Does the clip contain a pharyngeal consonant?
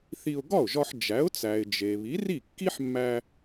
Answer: yes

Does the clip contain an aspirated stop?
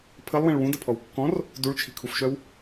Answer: yes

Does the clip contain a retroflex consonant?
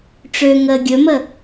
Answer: yes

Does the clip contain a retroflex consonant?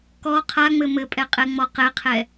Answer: no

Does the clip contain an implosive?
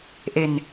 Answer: no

